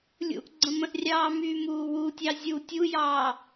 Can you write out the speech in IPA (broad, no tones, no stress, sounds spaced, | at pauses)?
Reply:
lʲ ṵ ʔ ɡ͡ǀ ə̃ m ə̃ ʔ rʲ ɑː m yː m uː w u tʲ ɑ zʲ u tʲ u j ɑː